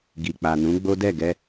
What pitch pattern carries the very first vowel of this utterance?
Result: low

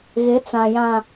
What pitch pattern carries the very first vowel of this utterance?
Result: rising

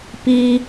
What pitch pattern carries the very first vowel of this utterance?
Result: high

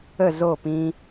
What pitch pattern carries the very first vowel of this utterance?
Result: falling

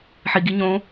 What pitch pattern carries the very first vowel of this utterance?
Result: low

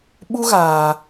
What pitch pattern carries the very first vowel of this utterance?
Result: high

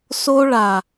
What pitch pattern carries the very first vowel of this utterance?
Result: high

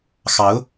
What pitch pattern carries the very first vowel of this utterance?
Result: rising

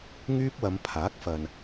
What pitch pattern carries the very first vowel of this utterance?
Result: high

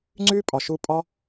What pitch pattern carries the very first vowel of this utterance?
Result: high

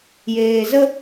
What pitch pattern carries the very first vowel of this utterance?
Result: low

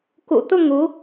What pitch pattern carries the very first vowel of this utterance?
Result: low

